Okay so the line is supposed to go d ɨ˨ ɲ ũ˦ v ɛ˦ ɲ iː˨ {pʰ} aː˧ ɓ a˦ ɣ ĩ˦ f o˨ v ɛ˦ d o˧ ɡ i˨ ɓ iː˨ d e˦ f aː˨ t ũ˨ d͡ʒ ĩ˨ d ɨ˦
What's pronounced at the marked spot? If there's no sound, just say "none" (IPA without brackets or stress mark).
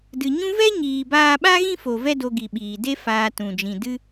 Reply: b